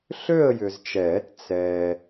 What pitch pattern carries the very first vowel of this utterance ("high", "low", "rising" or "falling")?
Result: falling